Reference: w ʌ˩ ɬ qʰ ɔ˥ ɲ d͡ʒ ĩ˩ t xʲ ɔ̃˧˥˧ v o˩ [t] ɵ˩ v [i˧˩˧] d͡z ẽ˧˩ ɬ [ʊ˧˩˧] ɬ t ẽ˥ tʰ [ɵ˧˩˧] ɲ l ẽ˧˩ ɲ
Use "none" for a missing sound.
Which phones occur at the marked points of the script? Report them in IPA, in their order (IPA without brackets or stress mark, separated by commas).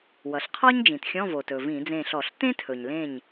t, ĩ˧˩˧, ɔ˧˩˧, ɵ˩